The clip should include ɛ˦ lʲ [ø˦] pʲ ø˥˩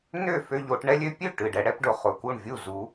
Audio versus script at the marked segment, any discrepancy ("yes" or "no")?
no